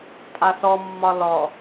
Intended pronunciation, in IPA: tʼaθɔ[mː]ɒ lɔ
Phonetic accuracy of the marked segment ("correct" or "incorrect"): correct